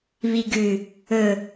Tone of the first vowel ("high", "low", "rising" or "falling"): low